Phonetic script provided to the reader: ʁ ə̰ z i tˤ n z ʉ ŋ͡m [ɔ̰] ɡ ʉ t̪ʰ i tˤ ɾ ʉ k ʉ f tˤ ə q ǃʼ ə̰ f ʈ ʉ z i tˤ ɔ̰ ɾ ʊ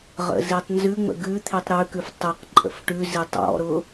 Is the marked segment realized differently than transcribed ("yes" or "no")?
yes